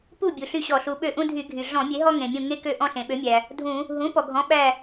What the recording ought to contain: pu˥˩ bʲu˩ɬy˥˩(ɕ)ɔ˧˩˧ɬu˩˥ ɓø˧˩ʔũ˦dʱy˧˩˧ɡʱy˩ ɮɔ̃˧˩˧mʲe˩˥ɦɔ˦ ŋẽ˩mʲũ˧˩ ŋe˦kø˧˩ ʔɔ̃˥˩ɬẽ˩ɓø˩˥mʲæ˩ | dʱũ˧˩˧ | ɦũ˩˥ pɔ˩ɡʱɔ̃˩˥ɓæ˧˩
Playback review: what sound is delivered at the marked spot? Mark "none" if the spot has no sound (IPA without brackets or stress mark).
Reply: ɕ